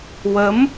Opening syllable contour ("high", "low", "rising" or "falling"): rising